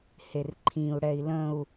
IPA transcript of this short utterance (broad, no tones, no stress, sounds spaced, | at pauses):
h e r ǃʰ ĩ u̯ ɽ ɛ i̯ l ə̃ u̯